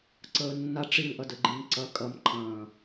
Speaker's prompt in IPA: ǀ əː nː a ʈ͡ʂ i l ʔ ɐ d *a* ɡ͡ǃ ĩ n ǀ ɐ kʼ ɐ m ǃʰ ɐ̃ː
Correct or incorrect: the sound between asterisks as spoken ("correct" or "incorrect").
incorrect